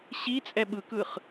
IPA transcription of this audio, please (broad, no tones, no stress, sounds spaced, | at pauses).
ɕ i t͡sʼ ɛ ɓ ɯ k ɯ χ